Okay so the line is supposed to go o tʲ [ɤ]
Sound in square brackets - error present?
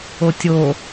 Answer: yes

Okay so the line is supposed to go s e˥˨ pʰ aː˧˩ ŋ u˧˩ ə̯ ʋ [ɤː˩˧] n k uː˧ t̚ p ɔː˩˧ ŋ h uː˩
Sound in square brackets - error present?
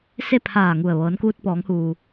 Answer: no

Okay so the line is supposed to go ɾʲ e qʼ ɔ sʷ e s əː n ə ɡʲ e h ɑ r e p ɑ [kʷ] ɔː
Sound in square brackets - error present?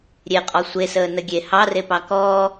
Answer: yes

